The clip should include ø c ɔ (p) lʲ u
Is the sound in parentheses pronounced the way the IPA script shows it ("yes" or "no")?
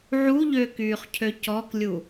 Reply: no